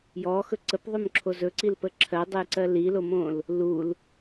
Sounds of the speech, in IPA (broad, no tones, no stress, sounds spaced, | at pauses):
j ɔ x ɵ ǀ ə p ðˤ ɵ m ǁʰ o z ɵ ǀ i l p ə ǁʰ ɜ dˤ ɘ j ǀ ɜ l i l o m õ l | l u l